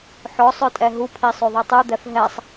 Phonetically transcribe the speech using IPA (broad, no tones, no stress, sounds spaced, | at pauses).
ħ ɔ sˤ œ tʼ ɛ ɦ u pʰ i sˤ ø ðˤ i tˤ u d̪ ɛ f ɦ ɛ sˤ